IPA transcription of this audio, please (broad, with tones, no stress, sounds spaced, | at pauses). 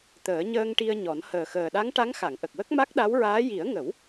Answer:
t̪ əː˨˩˦ ɲ əː˧ ŋ ʈ i˧ ə̯ ɲ ɔ˨˩˦ n h əː˨˩ x əː˨˩ ɗ a˧˥ ŋ ʈ a˧˥ ŋ x a˨˩˨ ŋ ʔ ə˨˩ k̚ w ə˦˥ k̚ m a˦˥ k̚ ɗ a˧˥ w ɹ aː˧˥ j i˨˩˦ ə̯ ŋ ə˨˩˦ w